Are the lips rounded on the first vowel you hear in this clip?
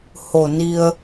yes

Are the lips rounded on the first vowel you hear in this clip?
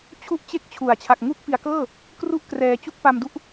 yes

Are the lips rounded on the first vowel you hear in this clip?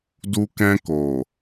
yes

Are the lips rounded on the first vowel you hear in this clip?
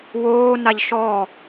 yes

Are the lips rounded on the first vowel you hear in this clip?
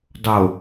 yes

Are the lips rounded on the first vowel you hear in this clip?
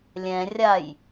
no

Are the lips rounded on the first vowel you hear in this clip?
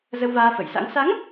no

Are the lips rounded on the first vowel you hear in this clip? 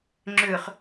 yes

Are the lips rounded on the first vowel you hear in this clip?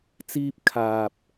no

